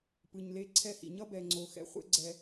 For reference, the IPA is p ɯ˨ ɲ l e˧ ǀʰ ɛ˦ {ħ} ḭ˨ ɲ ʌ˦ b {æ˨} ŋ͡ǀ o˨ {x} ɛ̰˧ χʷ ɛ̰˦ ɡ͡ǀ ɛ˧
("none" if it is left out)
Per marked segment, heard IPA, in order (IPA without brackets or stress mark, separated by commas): h, ɛ˨, x